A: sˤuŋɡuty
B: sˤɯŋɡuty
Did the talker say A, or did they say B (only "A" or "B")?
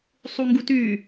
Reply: A